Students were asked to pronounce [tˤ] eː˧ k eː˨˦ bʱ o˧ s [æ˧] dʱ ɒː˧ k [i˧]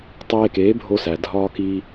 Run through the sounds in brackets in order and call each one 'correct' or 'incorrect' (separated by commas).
correct, incorrect, correct